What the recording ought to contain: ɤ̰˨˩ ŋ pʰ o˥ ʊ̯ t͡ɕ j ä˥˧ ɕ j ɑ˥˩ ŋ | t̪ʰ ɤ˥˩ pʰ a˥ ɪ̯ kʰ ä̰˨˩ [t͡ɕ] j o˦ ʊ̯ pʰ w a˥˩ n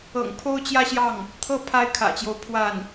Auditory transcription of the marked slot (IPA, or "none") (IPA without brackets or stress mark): t͡ɕ